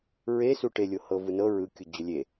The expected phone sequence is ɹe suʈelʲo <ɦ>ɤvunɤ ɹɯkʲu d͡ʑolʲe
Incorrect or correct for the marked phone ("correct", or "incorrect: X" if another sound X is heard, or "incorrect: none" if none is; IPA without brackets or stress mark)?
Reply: incorrect: h